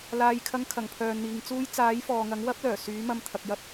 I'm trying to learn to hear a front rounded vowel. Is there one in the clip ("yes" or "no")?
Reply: yes